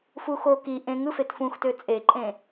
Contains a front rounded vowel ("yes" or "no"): yes